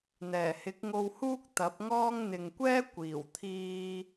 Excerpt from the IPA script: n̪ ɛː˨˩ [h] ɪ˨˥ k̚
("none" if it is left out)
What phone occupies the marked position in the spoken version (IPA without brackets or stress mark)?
h